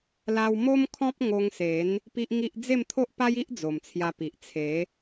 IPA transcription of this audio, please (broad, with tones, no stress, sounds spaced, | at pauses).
l a˦ w m o˦ m kʰ ɔ̃˦ p̚ ŋ o˧ ŋ s e˨˦ n | p i˦ ʔ ŋ i˦ ʔ d͡z e˥˧ m t̪ʰ o˦ ʔ p a˦ j i˦ ʔ d͡z o˨˩ m t͡sʰ j a˧ p i˨ ʔ t͡sʰ e˨˦